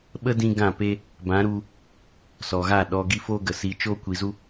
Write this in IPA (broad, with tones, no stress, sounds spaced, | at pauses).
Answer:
ɓ ə˦ d ĩ˧ ɡ ã˦˨ p e˦ | b ã˨˦ ɾ u˧ | s ɔ˨ ɣ a˦˨ ɗ ɔ˨ ɡ i˦ f oː˦ ɡ ə˨ s iː˧ t͡ʃ oː˦ kʷ i˨ z u˦